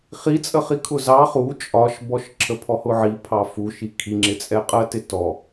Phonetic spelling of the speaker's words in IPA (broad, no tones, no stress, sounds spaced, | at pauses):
χ i t͡sʼ ə χ i kʰ ʊ z ɑ χ u t͡ʃʼ ɒ ʃ b ɔ ʃ ǁʰ ə pʰ ɔ h ʊ ʕ i pʰ ɑ f u ʃ i kʰ i ŋ͡ǁ ɪ t͡sʼ ɛ qʼ ɜ t ɪ t ɔ